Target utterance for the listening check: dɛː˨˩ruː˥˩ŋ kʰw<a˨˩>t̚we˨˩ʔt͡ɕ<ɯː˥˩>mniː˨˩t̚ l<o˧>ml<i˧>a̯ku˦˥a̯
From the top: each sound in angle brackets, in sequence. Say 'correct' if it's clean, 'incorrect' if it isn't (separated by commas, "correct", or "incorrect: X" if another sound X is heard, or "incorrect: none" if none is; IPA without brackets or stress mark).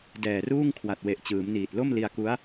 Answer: correct, incorrect: ɯː˩˦, incorrect: o˥˩, correct